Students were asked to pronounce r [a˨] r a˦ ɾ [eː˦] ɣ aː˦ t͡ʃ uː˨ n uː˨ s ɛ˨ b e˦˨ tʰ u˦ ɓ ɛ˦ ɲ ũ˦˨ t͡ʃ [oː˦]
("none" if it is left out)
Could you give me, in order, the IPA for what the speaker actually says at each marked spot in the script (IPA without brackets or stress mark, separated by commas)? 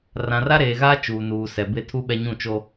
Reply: ã˨, eː˨, o˦